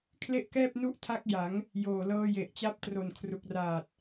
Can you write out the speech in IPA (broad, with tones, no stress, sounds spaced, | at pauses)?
kʰ l e˥˩ ʔ k ɛː˥˩ p̚ n u˥˩ ʔ tʰ a˦˥ k̚ j a˩˦ ŋ | j oː˨˩ l ɤː˧ j e˨˩ ʔ t͡ɕ a˦˥ p̚ t r o˨˩ n kʰ r u˨˩ k̚ r aː˨˩ t̚